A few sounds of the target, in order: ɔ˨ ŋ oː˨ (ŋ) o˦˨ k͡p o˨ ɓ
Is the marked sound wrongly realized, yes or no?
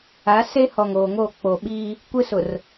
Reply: no